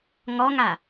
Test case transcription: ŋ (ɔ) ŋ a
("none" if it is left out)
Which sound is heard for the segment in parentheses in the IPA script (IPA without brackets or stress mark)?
ɔ